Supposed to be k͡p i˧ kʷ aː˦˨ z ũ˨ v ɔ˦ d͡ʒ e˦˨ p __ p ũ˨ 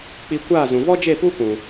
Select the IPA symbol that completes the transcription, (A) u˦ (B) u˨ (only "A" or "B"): A